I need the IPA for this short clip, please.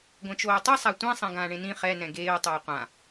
ɡʷɛ̃t͡ʃoːtˤɯ sˤatʷɛ̃ sˤɛ̃ɡãːɳẽnĩ χɛ nɛ̃ɡeːʊ̯ tˤoːqʷã

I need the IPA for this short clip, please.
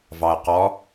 vɑə̯qɔ

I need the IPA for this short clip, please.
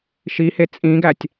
ʃihe t͡sʼĩɡætʲ

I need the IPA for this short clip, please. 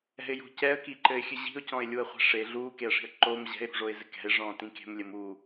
ɛ̤ɪ̯jo̤ cɛə̯kiǃɘɪ̯xʲɨ ʑi̤ʊ̯cɔ̃ɪ̯lʲuə̯χʷɛ̤ ʂe ɮuːkeə̯ʂi̤ə̯ ǃoːm ʑɛ̤ɪ̯ɾṳʐoɪ̯zɘ kɛ̤ɪ̯ʐɔ̃ːtĩ ke̤mlʲɘm uː

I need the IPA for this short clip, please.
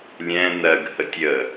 lʲɛ̃ nɜɡhətʲ ə

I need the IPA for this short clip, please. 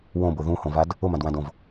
wõbʊ ðũhõvad | ʊmãdwãdõv

